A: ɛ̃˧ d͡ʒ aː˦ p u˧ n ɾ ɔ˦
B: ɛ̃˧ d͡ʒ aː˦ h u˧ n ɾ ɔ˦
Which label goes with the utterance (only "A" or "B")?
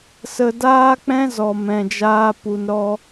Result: A